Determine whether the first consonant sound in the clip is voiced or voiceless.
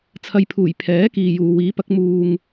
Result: voiceless